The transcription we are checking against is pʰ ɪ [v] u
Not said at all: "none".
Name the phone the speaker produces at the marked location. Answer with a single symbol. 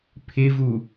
v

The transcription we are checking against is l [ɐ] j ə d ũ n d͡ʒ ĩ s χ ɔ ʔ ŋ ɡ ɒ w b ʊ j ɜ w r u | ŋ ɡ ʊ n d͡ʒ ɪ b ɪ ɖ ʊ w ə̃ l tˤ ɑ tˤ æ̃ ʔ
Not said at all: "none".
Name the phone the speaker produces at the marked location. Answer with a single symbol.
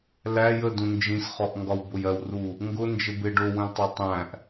æ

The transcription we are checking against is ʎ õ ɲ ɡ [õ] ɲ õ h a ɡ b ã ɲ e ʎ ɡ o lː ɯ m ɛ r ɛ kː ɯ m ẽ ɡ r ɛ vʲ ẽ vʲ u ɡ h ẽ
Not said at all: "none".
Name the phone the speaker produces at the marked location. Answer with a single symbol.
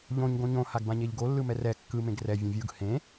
õ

